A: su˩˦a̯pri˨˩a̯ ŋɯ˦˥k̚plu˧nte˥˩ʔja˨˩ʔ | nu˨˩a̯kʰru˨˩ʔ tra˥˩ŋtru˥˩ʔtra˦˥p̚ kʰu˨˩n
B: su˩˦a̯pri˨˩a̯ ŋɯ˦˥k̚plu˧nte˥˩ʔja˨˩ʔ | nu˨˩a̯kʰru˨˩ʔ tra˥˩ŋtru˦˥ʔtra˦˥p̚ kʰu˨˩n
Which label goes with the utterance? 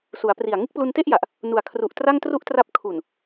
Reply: A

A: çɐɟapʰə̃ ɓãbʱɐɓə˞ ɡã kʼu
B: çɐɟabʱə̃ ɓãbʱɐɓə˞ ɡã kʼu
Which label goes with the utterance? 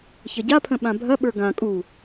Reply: A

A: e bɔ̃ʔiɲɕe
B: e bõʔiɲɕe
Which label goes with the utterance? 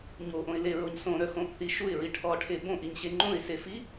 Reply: B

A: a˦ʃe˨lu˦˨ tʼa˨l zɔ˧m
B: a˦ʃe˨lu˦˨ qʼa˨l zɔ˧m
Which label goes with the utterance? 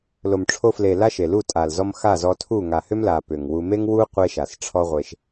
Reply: A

